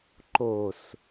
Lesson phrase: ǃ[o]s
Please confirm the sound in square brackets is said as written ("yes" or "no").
yes